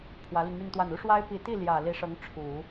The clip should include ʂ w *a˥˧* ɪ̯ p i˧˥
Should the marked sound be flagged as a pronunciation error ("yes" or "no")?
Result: yes